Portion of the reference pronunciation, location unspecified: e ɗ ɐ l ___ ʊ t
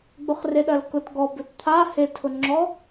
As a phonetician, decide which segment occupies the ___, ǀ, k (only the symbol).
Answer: k